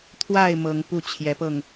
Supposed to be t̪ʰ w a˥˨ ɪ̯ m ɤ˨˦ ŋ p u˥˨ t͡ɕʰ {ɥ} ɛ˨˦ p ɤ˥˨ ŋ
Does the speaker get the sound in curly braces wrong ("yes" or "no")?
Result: yes